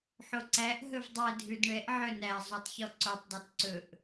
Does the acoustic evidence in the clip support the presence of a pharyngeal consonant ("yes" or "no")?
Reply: yes